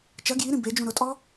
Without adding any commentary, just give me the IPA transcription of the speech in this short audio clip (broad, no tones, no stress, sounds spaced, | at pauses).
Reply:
t͡ʃ ɐ ɡ j i ɾ ĩ b e d͡ʒ ũ ɾ ʊ tʼ ɔ